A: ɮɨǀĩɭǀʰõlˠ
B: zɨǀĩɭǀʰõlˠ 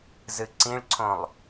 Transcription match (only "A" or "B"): B